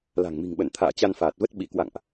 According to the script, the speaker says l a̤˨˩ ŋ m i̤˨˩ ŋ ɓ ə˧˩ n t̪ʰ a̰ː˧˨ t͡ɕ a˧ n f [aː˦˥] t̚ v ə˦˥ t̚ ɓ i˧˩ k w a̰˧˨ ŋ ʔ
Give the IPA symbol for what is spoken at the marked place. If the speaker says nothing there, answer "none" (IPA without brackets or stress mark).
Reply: aː˨˩